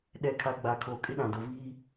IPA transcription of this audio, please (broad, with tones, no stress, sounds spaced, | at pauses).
ɗ ɛ˨ kʰ a˨ ɡ͡b aː˨ kʰ oː˨ kʼ ɪ˦ ɗ ã˨ d o˨ v iː˦